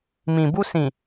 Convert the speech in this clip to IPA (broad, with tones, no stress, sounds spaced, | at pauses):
m ĩ˨ b u˧ s ĩ˨